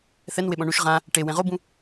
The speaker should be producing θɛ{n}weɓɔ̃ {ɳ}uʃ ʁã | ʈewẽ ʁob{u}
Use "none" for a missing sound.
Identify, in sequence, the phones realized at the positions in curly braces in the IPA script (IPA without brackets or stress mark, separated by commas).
n, ɳ, ũ